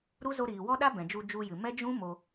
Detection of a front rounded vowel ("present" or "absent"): absent